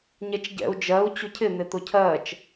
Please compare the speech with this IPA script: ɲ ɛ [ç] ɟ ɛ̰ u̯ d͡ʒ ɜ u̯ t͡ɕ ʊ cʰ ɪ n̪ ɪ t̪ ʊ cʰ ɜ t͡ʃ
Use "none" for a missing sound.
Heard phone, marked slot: t͡ʃ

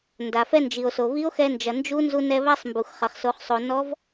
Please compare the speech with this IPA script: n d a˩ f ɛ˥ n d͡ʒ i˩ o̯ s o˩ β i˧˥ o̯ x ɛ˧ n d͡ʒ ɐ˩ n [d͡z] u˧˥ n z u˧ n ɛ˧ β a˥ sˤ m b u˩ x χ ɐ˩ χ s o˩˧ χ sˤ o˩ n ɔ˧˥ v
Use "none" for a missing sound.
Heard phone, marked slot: d͡ʒ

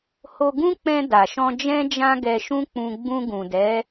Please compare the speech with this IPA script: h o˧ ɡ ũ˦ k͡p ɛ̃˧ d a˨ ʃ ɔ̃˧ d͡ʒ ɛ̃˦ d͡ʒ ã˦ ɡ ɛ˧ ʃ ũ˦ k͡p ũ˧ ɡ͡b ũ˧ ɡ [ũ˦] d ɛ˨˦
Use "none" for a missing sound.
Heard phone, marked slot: ũ˨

